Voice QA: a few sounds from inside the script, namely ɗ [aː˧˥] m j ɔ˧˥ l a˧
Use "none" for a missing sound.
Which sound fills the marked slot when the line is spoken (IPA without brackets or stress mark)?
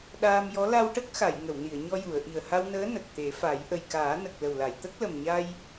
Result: aː˧